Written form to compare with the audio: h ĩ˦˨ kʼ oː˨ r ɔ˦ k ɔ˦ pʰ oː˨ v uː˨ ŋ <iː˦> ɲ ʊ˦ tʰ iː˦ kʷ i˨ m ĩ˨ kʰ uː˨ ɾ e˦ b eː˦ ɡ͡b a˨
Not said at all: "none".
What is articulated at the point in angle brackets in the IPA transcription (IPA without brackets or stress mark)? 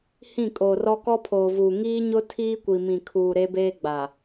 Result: iː˦